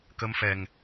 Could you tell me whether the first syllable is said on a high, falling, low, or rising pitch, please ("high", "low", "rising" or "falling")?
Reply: rising